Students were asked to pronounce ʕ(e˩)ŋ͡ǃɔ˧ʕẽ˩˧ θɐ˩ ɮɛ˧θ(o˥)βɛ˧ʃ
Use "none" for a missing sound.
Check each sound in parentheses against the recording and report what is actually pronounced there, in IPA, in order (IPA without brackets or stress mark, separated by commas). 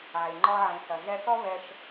e˩, ɔ˥